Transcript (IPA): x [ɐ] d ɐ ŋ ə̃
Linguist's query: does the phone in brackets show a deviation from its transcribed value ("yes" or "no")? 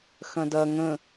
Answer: yes